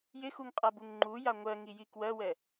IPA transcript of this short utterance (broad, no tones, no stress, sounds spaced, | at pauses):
j ɪ x u ŋ qʼ a b u ŋ ŋ͡ǃ u j a ŋʷ ɜ ŋ i j i k w ɜ w ɛ